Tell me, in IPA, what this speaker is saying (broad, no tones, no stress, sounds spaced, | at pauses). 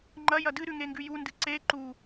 ŋ͡ǃ ɐ j ɐ d ɨ ɾ ʉ ŋ e ŋ ɡ ʉ j u n d ɨ ǀ e ǃ u